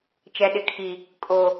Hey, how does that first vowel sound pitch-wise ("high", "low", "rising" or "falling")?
low